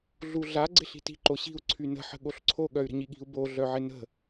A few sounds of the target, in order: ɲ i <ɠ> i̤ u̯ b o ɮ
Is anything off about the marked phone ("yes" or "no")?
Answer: no